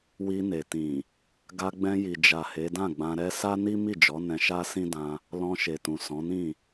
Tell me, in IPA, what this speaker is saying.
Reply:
wi˧ne˨tĩ˨ | ɡa˧ɡ͡bɛ̃˧ji˨d͡ʒa˨ he˨˦dã˦˨ɡ͡bã˧ ɾɛ˦ sa˦ ni˦ mi˦˨d͡ʒɔ˨˦ nɛ̃˧ʃa˦ sĩ˦dã˧ | lɔ̃˧ʃe˨tũ˨ sɔ̃˨˦nĩ˦˨

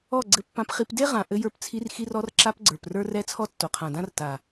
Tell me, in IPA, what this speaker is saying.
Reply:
ɔ˦˨ ɡ͡ǀɘ˧pːã˧pχi˧p de˦ʁã˨ ʔɘ˧jə˞˧pt͡sʰi˧r xi˧rɔ˧rǁa˧p ɡ͡ǀə˞˨prə˞˦rɛ˦ t͡sʰɔ˦tːo˨qʰã˨dã˦r ta˨

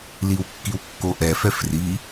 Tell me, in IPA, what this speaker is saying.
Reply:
liwkːiwkːoʔɛ fɛfri

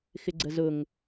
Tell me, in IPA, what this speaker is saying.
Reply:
xɪɡ͡ǀəzʊŋ

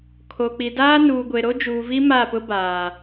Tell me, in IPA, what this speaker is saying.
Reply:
kʰo˨k͡pi˨daː˦ nuː˨ɡʷe˨ ɾo˦d͡ʒuː˨vi˦ ma˦˨pʊ˦baː˨

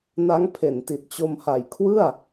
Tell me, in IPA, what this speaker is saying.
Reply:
na˦˥ŋ pʰe˨˩nti˨˩t̚ t͡ɕo˧mha˨˩j kʰwɯ˥˩a̯

